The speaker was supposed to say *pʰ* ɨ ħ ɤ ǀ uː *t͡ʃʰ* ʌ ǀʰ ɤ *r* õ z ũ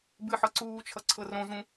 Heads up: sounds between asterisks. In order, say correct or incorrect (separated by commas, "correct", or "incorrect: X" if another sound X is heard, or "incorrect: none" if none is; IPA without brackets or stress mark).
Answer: incorrect: b, correct, correct